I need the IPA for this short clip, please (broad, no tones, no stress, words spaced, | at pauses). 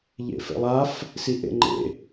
ʎḛfḛlˠaf | siʔḛŋ͡ǃḛ